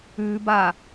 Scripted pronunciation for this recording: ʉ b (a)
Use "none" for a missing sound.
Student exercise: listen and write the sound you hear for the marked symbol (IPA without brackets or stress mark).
a